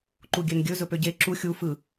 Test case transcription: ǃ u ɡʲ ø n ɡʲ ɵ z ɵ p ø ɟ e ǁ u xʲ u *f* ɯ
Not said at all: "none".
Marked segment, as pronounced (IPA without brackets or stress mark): f